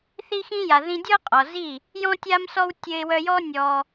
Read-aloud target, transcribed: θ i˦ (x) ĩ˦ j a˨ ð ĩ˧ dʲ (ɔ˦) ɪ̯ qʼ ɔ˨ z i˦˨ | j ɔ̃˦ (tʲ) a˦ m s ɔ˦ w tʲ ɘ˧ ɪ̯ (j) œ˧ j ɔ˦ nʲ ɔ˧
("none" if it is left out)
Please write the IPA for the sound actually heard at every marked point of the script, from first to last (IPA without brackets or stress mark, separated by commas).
x, ɔ˦, tʲ, w